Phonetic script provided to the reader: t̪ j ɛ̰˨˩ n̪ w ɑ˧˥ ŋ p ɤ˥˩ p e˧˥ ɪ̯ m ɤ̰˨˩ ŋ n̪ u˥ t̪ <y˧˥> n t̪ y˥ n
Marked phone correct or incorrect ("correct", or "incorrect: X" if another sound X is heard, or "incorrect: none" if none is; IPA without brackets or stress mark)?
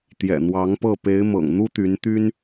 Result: correct